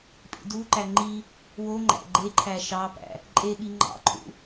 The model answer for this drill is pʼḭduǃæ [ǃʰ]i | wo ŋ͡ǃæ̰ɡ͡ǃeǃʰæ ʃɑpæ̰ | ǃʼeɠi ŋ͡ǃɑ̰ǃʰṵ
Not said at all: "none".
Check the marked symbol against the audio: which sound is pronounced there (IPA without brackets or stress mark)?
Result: ŋ͡ǃ